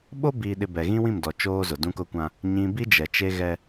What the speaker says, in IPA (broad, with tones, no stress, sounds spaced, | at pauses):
ɓ o˦ b iː˨ ɗ ɪ˨ b ɛ˨ ɣ ĩ˦ w ĩ˦˨ m d ɔ˨ t͡ʃ oː˦ z ʊ˨ d ũ˦ k ʊ˦ kʷ ã˦ | ɲ ĩ˨ b i˦ d͡ʒ ɛ˨ t͡ʃ e˦ ɣ ɛ˦